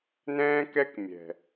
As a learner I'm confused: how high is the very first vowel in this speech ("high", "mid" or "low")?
mid